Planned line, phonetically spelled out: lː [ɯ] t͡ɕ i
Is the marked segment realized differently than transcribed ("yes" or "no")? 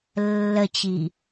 yes